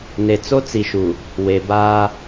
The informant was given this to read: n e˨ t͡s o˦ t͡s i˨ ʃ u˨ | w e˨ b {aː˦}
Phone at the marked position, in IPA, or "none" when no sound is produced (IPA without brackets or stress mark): aː˦